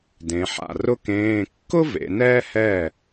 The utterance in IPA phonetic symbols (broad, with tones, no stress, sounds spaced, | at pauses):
d ẽ˩˧ ħ a̰˩ r ʊ˥ k ẽː˧˥˧ kː ʊ˥ v ḛ˩˧ n ɛː˥ h ɛ˥˩